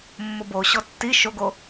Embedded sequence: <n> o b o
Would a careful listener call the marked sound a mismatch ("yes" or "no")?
yes